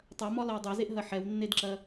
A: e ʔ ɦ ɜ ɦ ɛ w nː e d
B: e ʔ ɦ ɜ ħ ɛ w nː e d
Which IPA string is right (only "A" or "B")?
B